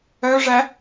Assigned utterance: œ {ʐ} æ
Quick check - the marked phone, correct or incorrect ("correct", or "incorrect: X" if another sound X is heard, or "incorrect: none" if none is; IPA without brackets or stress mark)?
correct